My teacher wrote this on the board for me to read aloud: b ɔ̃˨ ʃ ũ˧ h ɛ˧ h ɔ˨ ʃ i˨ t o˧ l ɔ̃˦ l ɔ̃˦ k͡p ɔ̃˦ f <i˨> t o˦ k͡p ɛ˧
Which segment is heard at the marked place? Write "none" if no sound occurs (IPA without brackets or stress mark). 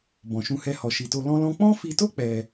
i˧